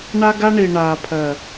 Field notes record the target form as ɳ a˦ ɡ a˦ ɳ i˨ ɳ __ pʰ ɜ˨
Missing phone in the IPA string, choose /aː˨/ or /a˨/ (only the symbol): aː˨